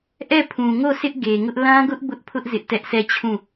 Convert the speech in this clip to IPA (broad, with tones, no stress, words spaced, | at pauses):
ʔɛ˦˨pʰũ˨ŋo˦˨ sʰɪ˦ʔɡe˨ŋʊ˦ʔ lã˦ɡʊ˦ʔ bʊ˦ʔpʰʊ˦ʔ zɪ˦ʔtɛ˦ʔ sʰɛ˦˨t͡ɕʰũ˦˨